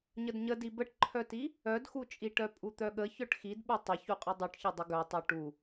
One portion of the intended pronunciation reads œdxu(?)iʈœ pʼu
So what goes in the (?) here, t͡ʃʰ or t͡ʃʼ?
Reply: t͡ʃʼ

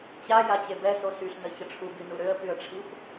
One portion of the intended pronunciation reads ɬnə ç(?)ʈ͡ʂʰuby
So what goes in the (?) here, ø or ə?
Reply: ə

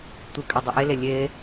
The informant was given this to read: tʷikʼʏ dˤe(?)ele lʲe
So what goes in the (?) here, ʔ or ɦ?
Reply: ʔ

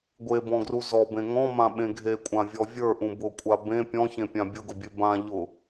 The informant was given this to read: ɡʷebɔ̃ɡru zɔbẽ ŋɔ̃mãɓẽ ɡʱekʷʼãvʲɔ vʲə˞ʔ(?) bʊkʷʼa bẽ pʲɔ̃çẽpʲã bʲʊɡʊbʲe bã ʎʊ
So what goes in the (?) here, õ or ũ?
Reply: ũ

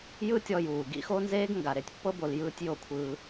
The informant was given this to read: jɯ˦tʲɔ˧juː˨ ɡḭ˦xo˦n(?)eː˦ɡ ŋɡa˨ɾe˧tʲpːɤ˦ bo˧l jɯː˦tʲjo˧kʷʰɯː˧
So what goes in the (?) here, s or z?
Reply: z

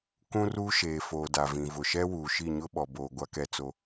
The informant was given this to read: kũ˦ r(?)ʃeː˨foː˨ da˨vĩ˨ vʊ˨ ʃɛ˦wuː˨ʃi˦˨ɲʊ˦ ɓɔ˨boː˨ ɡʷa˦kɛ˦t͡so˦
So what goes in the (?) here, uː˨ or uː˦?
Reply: uː˦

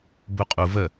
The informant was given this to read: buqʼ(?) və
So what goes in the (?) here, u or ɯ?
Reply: u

